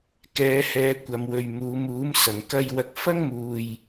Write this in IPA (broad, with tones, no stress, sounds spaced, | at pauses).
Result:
k ɛː˨˧ h ɛː˨˧ kʷ ɐ˧ m w ɵ˧ ɥ m uː˨˧ m uː˨˥ m s ɐ˨ ŋ k ɐ˧ j w ɐ˧ k̚ f ɐ˥ ŋ m uː˧ j